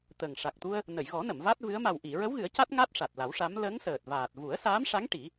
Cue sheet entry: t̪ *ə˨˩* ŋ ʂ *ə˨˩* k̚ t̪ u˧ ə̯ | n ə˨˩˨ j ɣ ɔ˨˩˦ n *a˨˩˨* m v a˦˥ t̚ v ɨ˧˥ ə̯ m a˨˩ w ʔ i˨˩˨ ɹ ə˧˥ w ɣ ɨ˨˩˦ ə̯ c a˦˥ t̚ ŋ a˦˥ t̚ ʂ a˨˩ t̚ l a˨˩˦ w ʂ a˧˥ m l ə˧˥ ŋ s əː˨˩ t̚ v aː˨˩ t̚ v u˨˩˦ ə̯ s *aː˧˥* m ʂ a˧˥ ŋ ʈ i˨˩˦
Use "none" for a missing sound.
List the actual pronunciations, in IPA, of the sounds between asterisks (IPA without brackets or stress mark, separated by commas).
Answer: ə˨˩, a˨˩, ə˨˩˨, aː˧˥